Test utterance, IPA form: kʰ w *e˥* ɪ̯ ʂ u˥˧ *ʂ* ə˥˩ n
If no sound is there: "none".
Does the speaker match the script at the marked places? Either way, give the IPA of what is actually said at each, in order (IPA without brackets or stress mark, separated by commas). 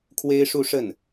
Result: e˥, ʂ